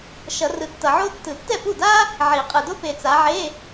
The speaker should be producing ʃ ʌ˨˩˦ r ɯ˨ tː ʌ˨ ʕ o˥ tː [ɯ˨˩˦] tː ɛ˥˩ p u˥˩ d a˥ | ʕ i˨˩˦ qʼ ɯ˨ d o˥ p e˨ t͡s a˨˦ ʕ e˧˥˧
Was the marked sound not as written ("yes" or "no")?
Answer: no